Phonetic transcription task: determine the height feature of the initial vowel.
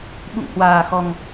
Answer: high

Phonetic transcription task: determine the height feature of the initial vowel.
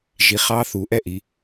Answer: high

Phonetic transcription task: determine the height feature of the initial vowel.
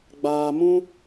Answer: low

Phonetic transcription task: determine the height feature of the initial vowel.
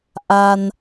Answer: low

